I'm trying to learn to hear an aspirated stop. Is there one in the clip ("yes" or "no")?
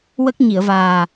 no